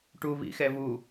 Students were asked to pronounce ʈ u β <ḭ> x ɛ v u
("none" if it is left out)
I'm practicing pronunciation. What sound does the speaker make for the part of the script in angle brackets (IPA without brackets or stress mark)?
ḭ